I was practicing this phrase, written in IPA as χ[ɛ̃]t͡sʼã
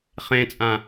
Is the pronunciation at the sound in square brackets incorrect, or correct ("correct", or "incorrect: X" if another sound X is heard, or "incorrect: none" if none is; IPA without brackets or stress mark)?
incorrect: ẽ